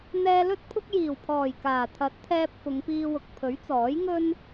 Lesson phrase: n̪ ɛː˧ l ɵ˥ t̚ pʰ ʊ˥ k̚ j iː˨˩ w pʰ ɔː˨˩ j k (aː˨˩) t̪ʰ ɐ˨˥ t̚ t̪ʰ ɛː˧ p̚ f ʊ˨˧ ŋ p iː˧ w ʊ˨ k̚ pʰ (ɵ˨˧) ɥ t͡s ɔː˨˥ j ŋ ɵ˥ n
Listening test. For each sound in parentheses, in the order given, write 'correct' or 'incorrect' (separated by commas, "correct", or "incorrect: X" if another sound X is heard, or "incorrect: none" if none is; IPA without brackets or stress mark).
correct, incorrect: ɵ˨˥